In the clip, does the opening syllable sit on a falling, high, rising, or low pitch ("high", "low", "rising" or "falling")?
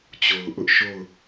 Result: low